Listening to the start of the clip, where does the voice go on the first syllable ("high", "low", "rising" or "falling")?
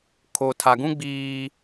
low